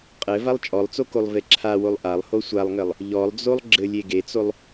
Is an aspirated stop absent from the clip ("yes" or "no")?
no